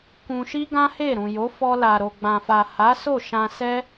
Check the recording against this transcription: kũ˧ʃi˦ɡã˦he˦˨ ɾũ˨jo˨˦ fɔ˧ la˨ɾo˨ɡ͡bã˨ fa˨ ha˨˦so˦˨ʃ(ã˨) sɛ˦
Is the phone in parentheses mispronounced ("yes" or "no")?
yes